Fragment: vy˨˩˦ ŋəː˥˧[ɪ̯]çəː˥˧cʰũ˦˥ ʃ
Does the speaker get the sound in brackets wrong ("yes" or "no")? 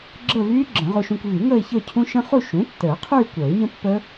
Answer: no